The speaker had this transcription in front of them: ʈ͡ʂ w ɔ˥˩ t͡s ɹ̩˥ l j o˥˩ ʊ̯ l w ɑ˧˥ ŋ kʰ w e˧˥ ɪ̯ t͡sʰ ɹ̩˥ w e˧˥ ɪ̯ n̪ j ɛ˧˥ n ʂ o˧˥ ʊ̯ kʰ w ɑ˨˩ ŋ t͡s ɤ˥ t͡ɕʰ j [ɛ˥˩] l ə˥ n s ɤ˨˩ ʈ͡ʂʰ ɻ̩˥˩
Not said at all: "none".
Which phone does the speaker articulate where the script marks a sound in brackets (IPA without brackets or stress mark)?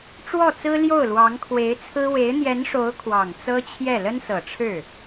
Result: ɛ˥˩